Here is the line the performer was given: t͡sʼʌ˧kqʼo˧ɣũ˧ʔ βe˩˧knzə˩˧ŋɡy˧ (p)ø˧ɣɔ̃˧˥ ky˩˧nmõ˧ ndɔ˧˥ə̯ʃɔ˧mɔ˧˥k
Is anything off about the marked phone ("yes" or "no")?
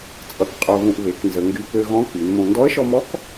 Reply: no